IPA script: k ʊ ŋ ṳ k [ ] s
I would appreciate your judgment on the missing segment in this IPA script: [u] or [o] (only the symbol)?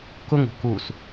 u